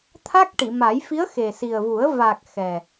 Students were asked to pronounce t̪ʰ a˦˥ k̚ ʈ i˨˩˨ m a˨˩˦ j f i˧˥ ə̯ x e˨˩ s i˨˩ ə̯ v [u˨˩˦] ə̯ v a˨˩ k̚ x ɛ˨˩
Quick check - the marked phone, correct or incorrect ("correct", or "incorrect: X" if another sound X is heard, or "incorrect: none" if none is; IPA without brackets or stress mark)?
correct